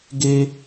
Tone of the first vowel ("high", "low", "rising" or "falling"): high